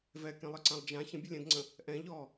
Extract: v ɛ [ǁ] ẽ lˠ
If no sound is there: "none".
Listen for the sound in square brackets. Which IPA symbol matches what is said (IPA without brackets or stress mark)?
k